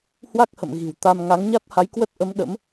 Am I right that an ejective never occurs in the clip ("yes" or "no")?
yes